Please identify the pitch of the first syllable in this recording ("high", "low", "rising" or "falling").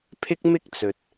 high